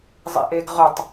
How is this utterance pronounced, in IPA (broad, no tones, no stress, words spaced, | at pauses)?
zˤḭʔeɡʁɵtˤ